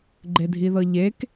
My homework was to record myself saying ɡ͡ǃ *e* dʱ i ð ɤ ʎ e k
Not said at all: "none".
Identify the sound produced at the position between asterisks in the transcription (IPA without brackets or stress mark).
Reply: e